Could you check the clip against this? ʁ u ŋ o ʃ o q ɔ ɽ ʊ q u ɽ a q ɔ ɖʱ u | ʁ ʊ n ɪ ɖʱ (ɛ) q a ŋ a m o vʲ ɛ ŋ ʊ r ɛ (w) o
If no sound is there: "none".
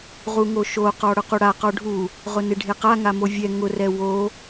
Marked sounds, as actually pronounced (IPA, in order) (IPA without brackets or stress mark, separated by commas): e, w